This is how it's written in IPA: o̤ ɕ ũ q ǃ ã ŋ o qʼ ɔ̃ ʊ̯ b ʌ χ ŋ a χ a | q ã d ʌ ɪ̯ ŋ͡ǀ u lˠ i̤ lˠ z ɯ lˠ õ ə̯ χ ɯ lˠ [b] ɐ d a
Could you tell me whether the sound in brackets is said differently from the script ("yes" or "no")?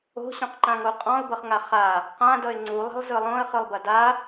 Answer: no